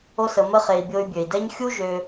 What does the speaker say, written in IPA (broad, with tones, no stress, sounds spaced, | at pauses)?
o˦ s ə˧ m ə˦ χ e˧ i̯ bʲ o˧ y̯ bʲ ø˨ i̯ d ɛ˦ ɲ xʲ u˦ ʒ ø˦